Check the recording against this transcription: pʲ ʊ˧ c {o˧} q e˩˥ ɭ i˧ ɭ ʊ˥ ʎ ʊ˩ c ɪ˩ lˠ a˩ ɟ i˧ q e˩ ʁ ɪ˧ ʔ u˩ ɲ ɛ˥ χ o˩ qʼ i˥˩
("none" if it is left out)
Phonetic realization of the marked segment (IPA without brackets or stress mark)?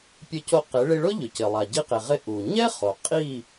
o˧